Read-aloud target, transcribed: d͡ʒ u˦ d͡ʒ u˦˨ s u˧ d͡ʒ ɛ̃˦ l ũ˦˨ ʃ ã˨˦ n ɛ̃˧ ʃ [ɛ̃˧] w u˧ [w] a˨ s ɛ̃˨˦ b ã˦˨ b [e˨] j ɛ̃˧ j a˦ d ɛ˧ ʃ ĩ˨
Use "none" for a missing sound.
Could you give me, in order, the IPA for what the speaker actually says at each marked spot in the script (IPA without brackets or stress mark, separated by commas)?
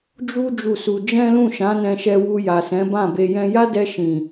ɛ˧, j, e˨